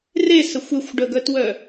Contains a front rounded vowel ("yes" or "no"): yes